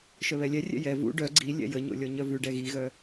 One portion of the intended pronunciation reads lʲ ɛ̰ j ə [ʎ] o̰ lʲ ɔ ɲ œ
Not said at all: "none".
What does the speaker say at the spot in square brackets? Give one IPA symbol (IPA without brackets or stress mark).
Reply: ɲ